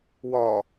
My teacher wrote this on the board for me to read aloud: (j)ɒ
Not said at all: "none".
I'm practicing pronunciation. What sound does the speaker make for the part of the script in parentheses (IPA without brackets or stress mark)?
w